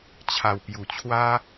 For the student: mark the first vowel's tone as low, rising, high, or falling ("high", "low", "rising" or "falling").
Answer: low